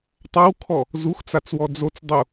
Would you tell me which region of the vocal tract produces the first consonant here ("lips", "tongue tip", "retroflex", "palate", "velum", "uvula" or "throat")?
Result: tongue tip